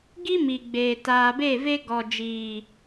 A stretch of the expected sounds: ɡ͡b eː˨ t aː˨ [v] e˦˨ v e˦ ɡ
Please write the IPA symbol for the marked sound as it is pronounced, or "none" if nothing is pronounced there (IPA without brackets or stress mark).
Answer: b